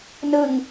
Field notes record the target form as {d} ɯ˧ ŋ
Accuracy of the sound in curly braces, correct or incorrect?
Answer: incorrect